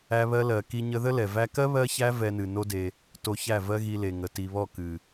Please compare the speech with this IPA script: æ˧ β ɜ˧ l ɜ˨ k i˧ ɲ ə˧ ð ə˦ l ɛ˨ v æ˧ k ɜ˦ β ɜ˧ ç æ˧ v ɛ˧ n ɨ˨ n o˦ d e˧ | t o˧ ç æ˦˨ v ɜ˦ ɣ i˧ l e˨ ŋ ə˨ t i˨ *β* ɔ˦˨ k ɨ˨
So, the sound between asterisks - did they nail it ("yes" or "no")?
yes